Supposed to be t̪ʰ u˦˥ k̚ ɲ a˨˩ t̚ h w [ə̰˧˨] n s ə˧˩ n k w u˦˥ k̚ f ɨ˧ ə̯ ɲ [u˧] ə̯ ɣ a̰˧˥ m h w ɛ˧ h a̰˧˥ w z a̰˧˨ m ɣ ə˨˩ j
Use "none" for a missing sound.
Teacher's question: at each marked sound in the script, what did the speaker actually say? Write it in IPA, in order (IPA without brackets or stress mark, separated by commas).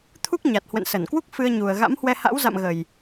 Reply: ə̰˧˨, u˨˩